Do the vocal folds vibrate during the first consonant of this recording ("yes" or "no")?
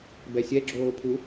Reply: yes